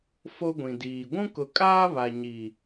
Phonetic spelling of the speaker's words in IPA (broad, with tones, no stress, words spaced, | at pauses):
fo˦ɡʷĩ˨diː˨ ɡʷũ˦kʊ˨kʼaː˦ βa˨ɲi˨